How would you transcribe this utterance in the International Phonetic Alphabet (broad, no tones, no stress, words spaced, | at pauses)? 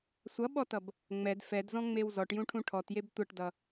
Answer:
sʷʌɓɔtʌb | ŋ͡mɛd fɛdzɔ̃ŋ͡mew zɔʈjũʈʰũ ʈʰɔtjeb tʷʌʈdʌ